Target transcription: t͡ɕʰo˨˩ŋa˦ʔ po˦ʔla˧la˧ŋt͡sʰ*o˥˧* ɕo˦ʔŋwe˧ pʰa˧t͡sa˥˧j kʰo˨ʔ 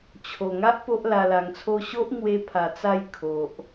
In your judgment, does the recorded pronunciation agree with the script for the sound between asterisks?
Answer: yes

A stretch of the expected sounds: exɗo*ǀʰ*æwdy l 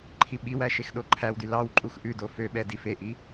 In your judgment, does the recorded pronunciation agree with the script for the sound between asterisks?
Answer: no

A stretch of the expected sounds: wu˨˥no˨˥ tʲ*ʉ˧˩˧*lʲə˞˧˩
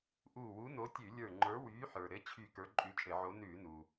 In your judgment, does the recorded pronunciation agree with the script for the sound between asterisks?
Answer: yes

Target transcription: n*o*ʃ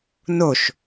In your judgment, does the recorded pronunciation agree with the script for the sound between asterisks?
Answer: yes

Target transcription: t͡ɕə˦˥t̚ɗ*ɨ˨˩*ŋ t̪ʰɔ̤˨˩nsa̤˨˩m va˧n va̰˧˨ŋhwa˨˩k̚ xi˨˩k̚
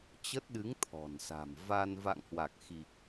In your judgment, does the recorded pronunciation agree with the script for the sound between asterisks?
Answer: no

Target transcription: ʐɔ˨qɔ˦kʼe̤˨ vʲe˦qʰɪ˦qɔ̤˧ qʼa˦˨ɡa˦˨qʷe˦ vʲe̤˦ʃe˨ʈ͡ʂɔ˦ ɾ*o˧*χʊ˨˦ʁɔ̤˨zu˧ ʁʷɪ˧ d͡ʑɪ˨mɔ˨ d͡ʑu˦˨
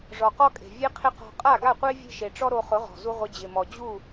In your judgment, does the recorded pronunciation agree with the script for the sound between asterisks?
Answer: yes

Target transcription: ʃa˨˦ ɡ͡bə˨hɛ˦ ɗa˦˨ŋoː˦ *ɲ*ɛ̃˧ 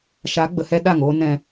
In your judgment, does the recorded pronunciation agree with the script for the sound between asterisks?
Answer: no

